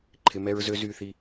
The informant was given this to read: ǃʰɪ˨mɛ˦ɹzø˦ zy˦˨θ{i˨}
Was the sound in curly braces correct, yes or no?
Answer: no